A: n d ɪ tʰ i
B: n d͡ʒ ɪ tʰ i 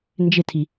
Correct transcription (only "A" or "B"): B